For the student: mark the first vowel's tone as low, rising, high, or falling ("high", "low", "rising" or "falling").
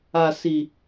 low